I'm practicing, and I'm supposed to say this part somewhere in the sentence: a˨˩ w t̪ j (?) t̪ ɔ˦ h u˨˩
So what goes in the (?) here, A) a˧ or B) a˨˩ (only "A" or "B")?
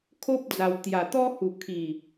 B